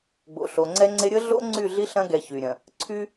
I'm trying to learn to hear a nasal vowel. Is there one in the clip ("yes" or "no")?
yes